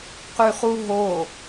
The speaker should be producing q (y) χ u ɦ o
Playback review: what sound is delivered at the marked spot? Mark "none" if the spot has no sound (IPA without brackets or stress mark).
y